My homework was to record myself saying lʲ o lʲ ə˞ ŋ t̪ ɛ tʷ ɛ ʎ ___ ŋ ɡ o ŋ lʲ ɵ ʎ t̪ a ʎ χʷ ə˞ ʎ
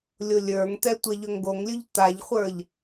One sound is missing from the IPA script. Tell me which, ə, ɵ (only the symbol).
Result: ɵ